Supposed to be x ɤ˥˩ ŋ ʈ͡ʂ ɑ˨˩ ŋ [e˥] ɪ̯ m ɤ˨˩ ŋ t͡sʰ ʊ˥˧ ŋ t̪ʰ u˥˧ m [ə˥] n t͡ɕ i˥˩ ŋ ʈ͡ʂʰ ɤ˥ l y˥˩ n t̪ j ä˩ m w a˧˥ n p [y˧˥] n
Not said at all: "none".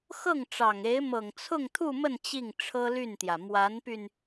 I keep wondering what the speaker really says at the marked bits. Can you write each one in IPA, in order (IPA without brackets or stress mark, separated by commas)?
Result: e˧˥, ə˥˧, y˧